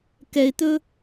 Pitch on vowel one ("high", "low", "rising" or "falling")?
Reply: low